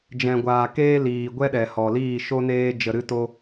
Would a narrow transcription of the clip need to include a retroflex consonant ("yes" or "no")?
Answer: no